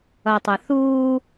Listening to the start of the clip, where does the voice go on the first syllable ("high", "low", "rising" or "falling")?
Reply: low